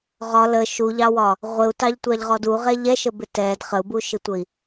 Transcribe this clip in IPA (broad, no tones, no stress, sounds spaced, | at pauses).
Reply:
ʁ ɒ l ə ʃ u ʎ ɑ w ɒ | ʁʷ ɪ u̯ t ɑ ʎ tʷ ɑ ʎ ʁ ɔ d u ʁ ɛ ʎ ɛ ʃ ə b ɪ t ɛ d χ ə u̯ b u ʃ ɪ tʷ ə i̯